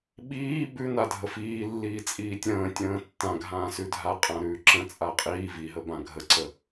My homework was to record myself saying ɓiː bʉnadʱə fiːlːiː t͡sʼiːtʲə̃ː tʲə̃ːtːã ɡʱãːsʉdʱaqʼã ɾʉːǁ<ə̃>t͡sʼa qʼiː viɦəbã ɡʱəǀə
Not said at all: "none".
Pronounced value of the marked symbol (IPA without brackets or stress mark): ə̃